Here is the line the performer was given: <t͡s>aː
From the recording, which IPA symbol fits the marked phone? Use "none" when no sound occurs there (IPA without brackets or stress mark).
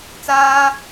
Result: t͡s